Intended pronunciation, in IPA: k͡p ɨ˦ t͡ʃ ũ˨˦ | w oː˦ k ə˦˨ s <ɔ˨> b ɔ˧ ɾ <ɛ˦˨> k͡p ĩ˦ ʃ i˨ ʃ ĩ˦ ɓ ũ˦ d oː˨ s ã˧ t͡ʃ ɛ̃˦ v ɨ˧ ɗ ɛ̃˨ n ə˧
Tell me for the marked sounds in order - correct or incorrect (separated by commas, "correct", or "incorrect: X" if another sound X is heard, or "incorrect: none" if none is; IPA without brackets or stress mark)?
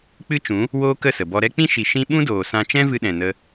incorrect: ə˨, incorrect: ɛ˦